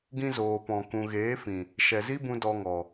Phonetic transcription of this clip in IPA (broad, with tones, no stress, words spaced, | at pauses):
ɡĩ˧zoː˨ pɔ̃˨ kũ˨ɣeː˨˦fĩ˨ | ʃɛ˨zi˦bũ˧ dɔ˧ŋɔ˨